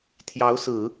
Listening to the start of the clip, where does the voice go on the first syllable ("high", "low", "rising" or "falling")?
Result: rising